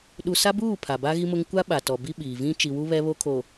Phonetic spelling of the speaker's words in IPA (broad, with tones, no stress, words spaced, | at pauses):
ɗu˨sa˦buː˦˨ pʰa˨ba˦ ɣi˦mʊ˦ŋ kʷa˦ ɓa˨tɔ˨ bi˦ɓiː˨vĩ˦ t͡ʃi˨wu˦ βɛ˦βo˦kʰo˨